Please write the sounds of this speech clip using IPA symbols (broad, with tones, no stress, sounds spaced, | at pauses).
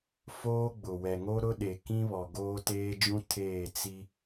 f oː˦ ɡ͡b ʊ˨ w ɛ˨ ŋ o˦ ɾ ʊ˦ ɗ e˨ k ĩ˦ β ɔ˨ ɡ oː˦ t eː˦ d͡ʒ ũ˦ tʰ eː˦˨ t͡s i˦